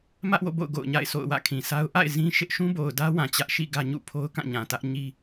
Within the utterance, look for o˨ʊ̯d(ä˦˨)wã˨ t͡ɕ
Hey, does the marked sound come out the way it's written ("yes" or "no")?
no